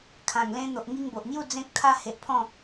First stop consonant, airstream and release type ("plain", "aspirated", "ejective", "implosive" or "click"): aspirated